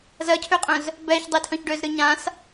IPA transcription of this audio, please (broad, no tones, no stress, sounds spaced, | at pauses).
z ɜ cʰ ø qʼ œ̃ z | b ɛː ç dˤ i tʰ œ̃ ç ɖ ø z ɾ ɨ ɲ ã s